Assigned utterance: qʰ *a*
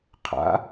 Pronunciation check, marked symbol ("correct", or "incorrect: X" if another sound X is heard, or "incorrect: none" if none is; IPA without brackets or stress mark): incorrect: a̰